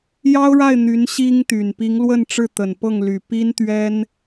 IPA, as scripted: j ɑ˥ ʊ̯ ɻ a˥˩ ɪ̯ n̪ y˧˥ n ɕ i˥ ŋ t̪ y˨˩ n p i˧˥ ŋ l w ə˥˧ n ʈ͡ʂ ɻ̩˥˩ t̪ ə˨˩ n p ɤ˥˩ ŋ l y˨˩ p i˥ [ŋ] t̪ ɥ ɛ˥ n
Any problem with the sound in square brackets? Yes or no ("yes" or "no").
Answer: yes